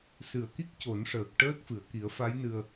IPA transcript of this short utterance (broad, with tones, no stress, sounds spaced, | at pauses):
s ɨ˨˩˨ ə̯ k i˦˥ k̚ c o˨˩˦ n ʂ əː˨˩ k̚ ʈ əː˦˥ t̚ f ɨ˨˩˨ ə̯ k i˨˩˦ ə̯ f a˧˥ j n ɨ˧ ə̯